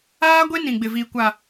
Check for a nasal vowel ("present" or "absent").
present